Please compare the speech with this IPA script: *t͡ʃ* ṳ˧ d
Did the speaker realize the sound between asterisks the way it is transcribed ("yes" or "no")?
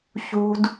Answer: no